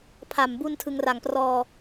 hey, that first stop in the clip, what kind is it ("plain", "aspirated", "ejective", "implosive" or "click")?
aspirated